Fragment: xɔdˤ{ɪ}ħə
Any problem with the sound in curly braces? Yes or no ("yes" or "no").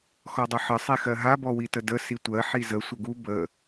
yes